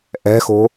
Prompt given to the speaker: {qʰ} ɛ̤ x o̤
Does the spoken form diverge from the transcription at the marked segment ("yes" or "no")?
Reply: yes